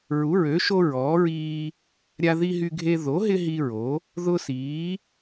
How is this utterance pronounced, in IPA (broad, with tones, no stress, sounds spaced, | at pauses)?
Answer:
ɹ u˨˥ ɹ ø˨˥ ʃ o˦ ɹ ɔː˨˥ ɹ iː˦ | ɾʲ a˦ ð i˦ ɦ y˦ ɡʱ e˦ ð o˨˥ ɦ ɪ˦ ɦ i˦ ɹ o˨˥ | ð ʊ˦ s iː˨˥